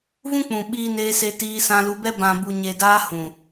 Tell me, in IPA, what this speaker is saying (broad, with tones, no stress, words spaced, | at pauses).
vũ˦k͡pũ˨ ɓiː˧neː˧se˧ tiː˧sã˧lu˧bɛ˦ bã˨bu˨ɲe˨daː˧ hũ˨